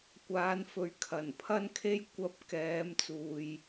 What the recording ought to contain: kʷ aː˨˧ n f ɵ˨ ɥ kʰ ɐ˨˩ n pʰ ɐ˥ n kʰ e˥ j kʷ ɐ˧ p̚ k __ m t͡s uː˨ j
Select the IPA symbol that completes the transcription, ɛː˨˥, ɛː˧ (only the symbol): ɛː˨˥